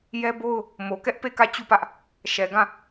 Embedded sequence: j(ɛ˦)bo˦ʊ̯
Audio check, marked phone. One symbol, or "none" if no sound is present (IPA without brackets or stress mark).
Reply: ɛ˦